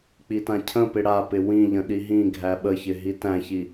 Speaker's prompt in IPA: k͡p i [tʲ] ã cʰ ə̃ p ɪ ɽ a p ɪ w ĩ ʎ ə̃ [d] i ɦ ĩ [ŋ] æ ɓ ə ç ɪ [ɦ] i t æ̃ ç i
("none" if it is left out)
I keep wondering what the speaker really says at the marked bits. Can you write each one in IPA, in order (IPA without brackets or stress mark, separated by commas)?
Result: t, ɗ, ɡʱ, ɦ